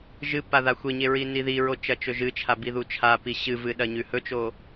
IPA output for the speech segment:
ʒ ɨ p a ð a xʷ e ɲ e ɹ i n i ð i ɹ o t͡ʃ ɐ t͡ʃ ɵ ʒ ɨ t͡ʃʰ a b i ð u t͡ʃʰ a p i ɕ ɨ v ɨ ɗ ɐ ɲ ʉ h ɵ t͡ʃ o

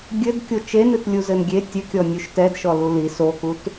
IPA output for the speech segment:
ɡʲ ɘ d kʲ o t͡ʃ e n ɨ t lʲ u z ɘ n ɡʲ e tʲ ɘ kʲ ɔ nʲ u ʃ t ɛ d ʃ ɔ l u l i s o k u t

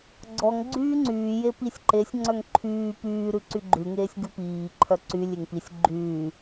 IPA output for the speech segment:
ɡ͡ǀ ɔ ŋ ɡ͡ǀ yː ŋ͡ǀ yː j e p i sʲ ǃ e sʲ ŋ͡ǀ œ ŋ ǃʰ yː p yː ɾ ʉ ǀ y ɡ͡ǃ ʉ ŋ eː sʲ ɡ ʉ p iː ǃʰ œ ǀ y lʲ e ŋ p i sʲ ɡ͡ǃ yː

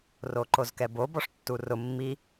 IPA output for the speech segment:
r o ǃ o z k ɛ b o b ɔ ʂ tː u r ʊ mː i

